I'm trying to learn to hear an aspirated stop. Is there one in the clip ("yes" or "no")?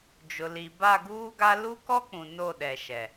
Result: no